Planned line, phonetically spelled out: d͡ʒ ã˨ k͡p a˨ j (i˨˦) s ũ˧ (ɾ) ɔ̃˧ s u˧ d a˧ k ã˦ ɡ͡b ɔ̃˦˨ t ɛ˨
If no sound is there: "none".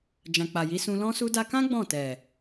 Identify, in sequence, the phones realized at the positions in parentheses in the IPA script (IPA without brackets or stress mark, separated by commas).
i˨˦, l